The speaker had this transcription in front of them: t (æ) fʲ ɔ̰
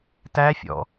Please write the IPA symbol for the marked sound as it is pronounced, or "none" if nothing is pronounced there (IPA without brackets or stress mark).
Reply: æ